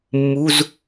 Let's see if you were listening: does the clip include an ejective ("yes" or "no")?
no